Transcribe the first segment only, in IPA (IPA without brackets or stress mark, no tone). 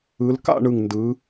ɯ